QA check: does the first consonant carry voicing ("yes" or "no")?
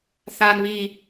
no